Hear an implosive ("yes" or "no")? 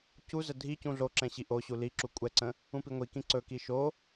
no